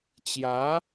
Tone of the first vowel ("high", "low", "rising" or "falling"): rising